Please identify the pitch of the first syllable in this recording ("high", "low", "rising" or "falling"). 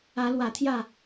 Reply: rising